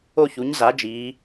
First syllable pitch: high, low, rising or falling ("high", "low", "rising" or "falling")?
falling